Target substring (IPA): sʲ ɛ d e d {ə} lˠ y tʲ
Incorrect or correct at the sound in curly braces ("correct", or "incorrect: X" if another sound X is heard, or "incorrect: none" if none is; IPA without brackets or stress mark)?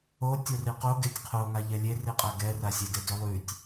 incorrect: ʏ